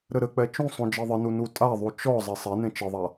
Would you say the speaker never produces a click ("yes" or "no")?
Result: yes